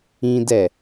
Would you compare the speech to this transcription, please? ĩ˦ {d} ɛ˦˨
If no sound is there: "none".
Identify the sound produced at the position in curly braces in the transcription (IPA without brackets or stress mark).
d